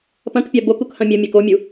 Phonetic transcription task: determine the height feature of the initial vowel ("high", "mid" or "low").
low